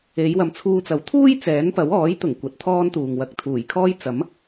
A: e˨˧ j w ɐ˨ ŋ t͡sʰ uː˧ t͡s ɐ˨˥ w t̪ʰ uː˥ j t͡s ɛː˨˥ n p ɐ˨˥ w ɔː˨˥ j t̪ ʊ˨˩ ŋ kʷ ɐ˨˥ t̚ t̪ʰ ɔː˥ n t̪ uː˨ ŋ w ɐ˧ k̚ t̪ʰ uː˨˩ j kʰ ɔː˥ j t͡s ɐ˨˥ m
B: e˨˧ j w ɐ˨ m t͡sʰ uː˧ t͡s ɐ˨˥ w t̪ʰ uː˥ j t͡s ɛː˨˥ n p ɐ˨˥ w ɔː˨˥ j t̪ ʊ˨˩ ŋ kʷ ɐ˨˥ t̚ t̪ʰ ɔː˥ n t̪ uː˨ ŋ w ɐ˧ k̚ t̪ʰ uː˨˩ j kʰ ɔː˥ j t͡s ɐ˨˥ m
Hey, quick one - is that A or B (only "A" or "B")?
B